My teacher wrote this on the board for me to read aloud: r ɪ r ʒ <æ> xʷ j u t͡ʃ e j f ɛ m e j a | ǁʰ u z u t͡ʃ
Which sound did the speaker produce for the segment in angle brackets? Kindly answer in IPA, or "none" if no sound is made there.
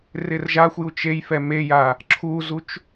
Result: a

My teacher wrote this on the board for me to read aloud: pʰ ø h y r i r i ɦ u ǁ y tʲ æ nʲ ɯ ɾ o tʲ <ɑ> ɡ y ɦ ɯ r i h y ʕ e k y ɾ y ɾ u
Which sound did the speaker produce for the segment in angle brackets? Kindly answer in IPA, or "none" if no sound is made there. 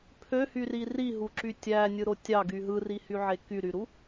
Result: ɑ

